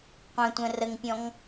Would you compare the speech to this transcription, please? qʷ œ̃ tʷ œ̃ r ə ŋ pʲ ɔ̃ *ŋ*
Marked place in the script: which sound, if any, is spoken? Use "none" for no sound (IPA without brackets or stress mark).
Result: ŋ